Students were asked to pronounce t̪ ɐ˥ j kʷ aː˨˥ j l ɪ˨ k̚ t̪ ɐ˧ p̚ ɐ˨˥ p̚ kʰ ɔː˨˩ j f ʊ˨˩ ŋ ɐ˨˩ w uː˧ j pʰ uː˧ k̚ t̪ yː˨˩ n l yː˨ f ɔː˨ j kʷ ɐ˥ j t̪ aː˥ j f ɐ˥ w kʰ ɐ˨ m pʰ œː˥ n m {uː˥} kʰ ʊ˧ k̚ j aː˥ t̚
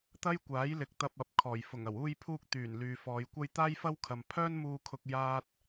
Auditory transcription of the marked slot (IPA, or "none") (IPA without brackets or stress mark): uː˧